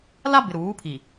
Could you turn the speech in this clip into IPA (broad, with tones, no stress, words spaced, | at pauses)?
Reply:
la˦bɪ˨ ɾuː˨˦pʰi˨